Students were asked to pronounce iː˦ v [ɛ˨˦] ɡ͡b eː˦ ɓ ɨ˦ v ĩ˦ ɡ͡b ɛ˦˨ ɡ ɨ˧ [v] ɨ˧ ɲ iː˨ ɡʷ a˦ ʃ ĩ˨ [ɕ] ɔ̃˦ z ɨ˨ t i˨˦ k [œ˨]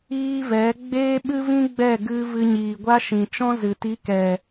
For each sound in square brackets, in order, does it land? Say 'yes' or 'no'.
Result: yes, yes, no, no

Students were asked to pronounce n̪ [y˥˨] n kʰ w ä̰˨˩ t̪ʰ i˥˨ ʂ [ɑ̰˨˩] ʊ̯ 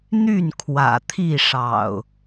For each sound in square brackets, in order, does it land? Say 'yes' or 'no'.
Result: yes, yes

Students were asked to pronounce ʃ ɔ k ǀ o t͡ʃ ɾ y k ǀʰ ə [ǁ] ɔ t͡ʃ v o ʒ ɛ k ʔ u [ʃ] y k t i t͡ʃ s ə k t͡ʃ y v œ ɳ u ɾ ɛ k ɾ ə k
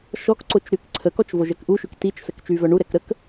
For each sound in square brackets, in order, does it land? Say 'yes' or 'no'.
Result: no, yes

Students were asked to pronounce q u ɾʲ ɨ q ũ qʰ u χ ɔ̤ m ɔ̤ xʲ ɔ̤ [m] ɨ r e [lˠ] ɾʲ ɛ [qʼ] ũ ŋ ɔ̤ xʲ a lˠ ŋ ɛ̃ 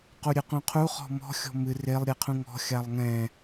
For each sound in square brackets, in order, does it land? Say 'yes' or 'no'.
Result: yes, yes, no

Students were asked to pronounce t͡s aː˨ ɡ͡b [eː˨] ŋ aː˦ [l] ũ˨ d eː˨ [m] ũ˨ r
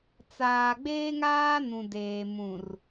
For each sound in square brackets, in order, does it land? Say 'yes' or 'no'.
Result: no, no, yes

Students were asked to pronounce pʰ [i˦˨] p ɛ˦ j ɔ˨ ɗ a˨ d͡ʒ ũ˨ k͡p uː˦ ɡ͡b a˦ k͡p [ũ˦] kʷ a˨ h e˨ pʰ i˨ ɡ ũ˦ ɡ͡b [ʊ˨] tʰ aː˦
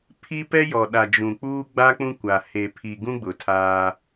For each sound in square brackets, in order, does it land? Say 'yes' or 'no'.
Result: no, yes, yes

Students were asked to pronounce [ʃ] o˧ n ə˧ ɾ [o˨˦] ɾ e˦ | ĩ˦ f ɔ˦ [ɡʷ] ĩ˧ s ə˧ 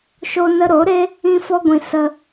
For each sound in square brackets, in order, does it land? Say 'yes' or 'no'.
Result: yes, yes, yes

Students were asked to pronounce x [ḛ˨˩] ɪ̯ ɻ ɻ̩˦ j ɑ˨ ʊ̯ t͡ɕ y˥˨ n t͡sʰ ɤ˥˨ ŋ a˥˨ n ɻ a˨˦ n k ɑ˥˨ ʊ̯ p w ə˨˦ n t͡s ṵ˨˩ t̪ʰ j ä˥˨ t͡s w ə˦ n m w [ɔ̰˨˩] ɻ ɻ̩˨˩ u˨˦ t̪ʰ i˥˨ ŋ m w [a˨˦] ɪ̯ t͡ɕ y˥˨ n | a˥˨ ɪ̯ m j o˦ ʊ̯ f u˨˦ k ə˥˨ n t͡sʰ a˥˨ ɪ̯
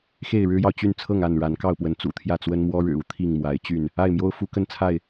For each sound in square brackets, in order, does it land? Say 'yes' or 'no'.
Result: no, no, yes

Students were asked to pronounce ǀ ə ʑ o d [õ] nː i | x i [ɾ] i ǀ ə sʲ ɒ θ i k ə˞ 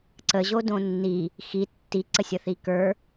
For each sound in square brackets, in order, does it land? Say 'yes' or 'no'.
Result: yes, no

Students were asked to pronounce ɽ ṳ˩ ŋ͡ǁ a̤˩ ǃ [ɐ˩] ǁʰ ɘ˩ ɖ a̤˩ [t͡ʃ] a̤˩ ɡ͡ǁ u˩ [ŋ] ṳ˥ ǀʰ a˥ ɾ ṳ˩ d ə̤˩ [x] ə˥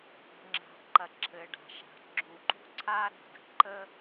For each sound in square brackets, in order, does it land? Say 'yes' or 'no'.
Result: yes, no, no, no

